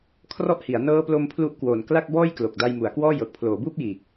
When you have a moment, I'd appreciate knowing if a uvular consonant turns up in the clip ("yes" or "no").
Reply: no